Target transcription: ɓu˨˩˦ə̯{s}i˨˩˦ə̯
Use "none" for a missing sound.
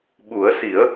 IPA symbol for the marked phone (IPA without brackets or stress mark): s